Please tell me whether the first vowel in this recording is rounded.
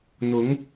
yes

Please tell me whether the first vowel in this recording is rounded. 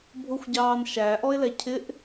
yes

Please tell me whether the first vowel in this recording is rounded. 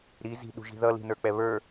no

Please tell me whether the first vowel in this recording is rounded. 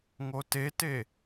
yes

